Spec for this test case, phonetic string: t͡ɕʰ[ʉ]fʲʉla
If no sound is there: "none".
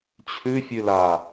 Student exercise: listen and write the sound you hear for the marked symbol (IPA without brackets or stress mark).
ʉ